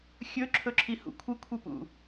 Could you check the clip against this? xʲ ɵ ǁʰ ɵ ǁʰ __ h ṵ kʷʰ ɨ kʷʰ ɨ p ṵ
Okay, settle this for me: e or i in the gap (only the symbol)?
i